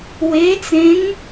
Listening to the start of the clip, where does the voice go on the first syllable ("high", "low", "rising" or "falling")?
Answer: rising